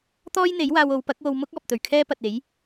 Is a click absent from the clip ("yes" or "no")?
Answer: yes